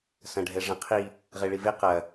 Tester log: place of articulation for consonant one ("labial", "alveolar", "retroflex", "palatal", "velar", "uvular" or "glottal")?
alveolar